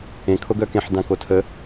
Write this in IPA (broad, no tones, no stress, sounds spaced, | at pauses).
ẽ kʰ o ɡ œ k ẽ ħ d ã k o tʰ ə